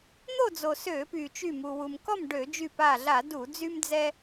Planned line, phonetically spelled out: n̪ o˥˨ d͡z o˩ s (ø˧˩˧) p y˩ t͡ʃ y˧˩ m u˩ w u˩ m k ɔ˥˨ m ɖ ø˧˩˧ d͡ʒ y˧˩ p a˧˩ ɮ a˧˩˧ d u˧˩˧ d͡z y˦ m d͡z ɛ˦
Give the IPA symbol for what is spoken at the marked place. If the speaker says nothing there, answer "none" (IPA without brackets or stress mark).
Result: ø˧˩˧